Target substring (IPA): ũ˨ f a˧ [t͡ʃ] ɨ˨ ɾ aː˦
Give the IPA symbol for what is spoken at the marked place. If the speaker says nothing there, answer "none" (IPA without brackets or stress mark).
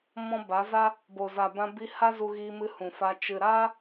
t͡ʃ